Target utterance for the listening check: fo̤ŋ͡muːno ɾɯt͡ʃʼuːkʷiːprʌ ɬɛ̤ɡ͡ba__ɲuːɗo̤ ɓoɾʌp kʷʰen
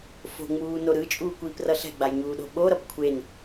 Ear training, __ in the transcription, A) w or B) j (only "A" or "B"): B